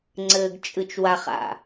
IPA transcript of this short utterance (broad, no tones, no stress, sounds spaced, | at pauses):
ŋ͡ǀ ɘː ɡ t͡ʃʼ ɨ t͡ʃ w a χ a̰